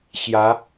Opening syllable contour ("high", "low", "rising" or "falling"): rising